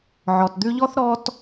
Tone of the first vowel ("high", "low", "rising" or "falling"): low